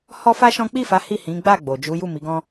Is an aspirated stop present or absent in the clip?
absent